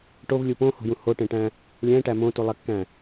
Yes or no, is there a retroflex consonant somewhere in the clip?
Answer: yes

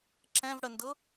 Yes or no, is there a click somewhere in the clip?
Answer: yes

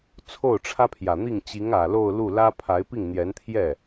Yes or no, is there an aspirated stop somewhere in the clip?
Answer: yes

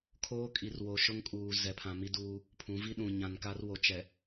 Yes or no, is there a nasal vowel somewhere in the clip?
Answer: yes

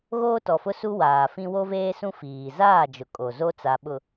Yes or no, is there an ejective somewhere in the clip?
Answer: yes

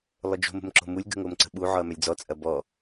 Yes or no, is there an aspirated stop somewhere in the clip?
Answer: no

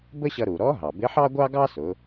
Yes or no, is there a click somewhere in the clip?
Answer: no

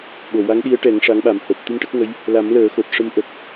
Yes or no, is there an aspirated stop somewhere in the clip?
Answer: no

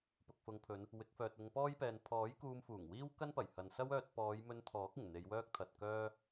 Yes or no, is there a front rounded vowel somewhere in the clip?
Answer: yes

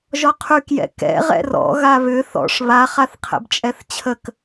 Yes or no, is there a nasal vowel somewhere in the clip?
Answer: no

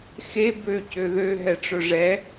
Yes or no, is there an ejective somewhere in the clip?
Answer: no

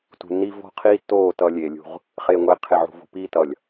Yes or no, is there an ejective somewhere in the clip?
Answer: no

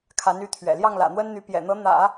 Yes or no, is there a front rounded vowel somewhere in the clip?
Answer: yes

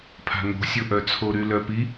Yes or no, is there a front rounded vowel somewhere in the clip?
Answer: yes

